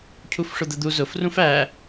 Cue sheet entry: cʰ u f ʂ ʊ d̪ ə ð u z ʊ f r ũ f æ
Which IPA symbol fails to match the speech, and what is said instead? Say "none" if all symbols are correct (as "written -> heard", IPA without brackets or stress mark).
ð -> d̪